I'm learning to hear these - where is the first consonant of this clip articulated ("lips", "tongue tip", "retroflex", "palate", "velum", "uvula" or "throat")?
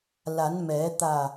tongue tip